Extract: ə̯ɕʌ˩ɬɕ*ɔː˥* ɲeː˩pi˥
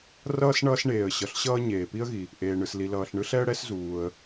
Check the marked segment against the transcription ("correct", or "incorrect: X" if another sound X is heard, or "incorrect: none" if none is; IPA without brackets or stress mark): incorrect: ʌː˥